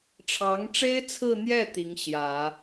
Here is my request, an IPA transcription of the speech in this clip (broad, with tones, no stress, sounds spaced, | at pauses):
ʈ͡ʂʰ ɑ˧˥ ŋ ʈ͡ʂ e˥ ɪ̯ t͡sʰ ɹ̩˥˧ n̪ j ɛ˥˩ t̪ i˧˥ ŋ ɕ j ä˨˩˦